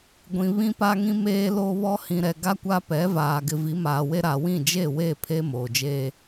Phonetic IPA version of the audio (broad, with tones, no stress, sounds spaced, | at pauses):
ɡʷ ĩ˨ β ĩ˦ p a˦ ŋ ĩ˦ m eː˦ l o˦ β ɔ˦ h ĩ˨ ɾ ɛ˨ ɡ a˦ kʷ a˦ p ɛ˨˦ v aː˨ ɡ ɪ˨ v i˨˦ m aː˨ w e˦ ɾ a˨ w ĩ˦˨ d͡ʒ e˦˨ w e˦˨ pʰ e˦ m oː˨ d͡ʒ eː˦